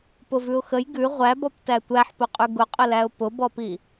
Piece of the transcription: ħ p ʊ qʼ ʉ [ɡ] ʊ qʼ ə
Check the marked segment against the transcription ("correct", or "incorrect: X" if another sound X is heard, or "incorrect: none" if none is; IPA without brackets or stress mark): correct